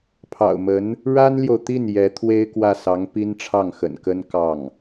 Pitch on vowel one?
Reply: low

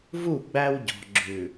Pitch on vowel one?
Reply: falling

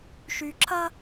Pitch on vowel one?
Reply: low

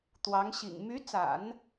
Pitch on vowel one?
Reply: rising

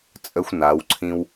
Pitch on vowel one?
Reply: high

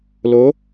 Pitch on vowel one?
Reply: rising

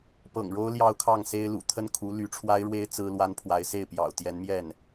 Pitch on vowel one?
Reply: low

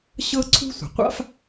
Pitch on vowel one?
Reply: high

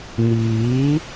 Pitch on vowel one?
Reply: rising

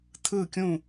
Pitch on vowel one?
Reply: falling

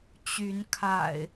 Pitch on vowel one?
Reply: rising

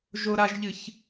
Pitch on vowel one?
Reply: low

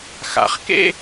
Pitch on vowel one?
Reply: low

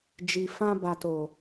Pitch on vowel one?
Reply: low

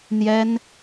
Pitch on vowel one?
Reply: high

